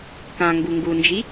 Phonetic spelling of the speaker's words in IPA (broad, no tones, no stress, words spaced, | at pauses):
kã ŋɡuŋɡund͡ʒi